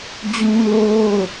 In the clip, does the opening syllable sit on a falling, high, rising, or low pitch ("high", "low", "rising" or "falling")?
high